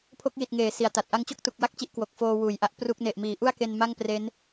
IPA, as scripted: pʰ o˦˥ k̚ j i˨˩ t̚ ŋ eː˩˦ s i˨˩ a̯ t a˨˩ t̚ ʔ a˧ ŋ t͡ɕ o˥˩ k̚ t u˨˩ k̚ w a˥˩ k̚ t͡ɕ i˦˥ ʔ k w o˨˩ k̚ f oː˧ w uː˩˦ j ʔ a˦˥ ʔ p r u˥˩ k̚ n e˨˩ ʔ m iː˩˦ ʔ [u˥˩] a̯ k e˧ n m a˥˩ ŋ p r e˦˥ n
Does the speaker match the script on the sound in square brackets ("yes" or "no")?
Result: yes